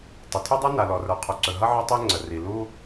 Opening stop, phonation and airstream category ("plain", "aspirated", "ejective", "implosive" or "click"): plain